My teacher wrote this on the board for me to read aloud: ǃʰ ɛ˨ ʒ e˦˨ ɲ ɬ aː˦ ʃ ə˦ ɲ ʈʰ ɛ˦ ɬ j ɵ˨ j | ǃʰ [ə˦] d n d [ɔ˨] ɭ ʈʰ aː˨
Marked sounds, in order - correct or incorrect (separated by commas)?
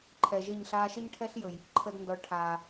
incorrect, correct